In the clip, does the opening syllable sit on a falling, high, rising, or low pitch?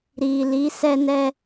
low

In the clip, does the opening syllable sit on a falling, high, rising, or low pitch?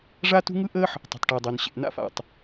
high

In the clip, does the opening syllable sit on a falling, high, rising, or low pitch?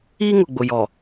high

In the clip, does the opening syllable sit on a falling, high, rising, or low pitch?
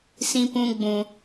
high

